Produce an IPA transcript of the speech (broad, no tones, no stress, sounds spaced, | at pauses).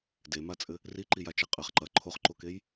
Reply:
d e m a t͡sʼ ɘ | r i ǃ i j a t͡ʃ e qʼ ɘ χ ǃ ɐ ǃʰ o χ ǃ o k e j